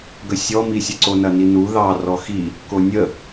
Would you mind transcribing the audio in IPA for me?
ɡəsʲɔmisʲə ǀonɐninu ðɑ rɔxi | konʲə

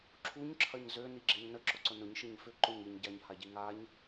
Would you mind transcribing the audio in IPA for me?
ǁʰuɲǁʰɐɲ zøniɡ͡ǁɪɲ nəǁʊǀʊ nʊɲʃɪɲ fʏǃʊɲ iɲɟaɲhaɟi ŋaɲ

